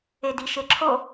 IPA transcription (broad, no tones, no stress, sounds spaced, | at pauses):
e d i ʃ e ǁʰ o